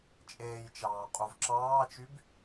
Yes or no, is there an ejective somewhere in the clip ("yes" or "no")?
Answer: yes